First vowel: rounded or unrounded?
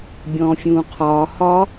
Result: rounded